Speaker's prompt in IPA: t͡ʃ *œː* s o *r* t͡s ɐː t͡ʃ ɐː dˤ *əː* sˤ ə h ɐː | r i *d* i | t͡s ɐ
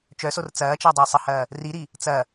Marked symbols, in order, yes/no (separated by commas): no, yes, yes, no